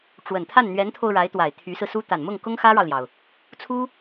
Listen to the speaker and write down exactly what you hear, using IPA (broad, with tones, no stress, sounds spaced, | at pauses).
ʈ͡ʂ w ə˨˩ n t̪ʰ a˥˩ n n̪ ɥ ɛ˧˥ n t̪ʰ o˧ ʊ̯ ɻ a˧˥ ɪ̯ t̪ w a˨˩ ɪ̯ t̪ʰ y˧˥ s ɹ̩˧ s u˥ t̪ a˨˩ n m ʊ˥˩ ŋ k ʊ˥ ŋ x ä˥ ɻ ɑ˨ ʊ̯ l j ɑ˩ ʊ̯ | t͡sʰ u˥